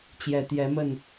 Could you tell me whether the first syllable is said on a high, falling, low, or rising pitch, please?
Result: low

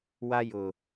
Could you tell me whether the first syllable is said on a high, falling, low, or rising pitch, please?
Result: high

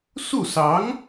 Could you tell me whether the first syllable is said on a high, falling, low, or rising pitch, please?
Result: falling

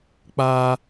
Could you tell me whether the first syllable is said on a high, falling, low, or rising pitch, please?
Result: high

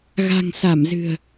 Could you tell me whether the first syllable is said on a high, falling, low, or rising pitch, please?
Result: low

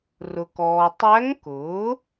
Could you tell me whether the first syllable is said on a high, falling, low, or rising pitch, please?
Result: low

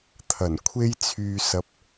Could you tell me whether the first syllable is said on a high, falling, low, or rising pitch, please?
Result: low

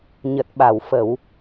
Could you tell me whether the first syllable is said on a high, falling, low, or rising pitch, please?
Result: low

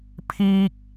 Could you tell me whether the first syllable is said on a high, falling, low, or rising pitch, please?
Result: high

